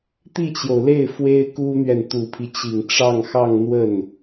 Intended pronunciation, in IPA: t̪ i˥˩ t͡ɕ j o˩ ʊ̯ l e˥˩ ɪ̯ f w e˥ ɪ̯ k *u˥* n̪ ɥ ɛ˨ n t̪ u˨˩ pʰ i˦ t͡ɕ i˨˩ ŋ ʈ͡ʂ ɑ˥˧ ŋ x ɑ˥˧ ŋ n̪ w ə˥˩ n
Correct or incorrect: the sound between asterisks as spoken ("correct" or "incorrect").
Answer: correct